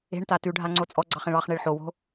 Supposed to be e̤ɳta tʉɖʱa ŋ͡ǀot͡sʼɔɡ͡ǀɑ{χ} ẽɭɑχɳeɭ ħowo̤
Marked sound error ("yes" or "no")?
no